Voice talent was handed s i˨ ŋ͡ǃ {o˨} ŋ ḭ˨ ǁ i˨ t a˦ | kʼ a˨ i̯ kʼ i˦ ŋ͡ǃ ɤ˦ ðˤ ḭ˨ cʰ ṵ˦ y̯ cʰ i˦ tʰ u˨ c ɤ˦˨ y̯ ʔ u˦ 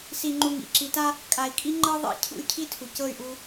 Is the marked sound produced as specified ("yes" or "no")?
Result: no